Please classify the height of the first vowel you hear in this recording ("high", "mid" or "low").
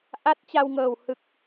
low